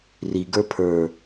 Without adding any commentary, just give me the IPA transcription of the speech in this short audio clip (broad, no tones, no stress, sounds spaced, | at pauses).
r i ɡ ə˞ pʰ ə˞